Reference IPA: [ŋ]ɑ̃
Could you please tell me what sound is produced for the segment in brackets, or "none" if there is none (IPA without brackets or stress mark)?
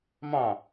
m